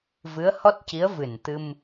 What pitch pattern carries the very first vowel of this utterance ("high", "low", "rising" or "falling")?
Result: rising